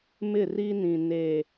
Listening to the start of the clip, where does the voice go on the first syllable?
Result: falling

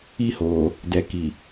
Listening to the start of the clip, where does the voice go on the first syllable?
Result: high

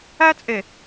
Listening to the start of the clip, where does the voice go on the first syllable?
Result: high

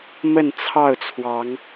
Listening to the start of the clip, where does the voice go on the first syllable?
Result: falling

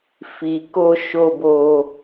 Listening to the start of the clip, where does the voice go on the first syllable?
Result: low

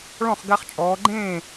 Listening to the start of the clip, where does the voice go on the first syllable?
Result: falling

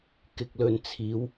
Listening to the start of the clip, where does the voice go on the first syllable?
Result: low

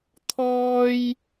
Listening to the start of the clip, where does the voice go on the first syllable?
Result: high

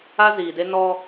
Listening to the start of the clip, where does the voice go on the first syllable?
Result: high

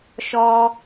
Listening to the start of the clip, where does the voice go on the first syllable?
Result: high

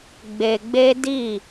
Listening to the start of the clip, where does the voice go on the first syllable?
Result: low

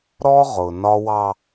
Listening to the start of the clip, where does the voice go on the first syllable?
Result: high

